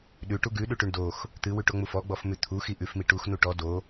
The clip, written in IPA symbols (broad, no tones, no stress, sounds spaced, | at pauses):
ɗ ʉ ʈ u ɡ ʉ ɗ ʉ ʈ ʉ ɳ d o x | t̪ ɨ w ʉ ʈ o ŋ͡m u f ɔ ɡ͡b ɔ f m ʉ t̪ʰ u x i ʔ ʉ f m i ʈ u x n u ʈ ɔ d o